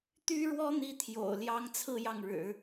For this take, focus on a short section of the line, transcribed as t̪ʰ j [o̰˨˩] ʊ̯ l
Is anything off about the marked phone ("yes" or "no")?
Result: no